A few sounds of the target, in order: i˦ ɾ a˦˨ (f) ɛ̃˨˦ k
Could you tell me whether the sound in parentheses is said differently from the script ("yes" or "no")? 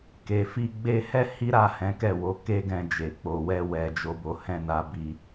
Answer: yes